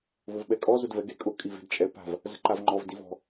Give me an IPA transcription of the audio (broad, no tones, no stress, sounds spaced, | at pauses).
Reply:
v ʊ v ɓ ɛ kʼ ɔ z ʊ d v ɛ ɡ e kʼ ʊ kʼ i v e̤ d t͡ʃʼ ɛ p a̤ v | z ə̤ ǃ a v ŋ͡ǃ ɔ v d i v ɔ̤